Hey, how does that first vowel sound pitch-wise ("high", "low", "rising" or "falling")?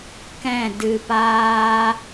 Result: falling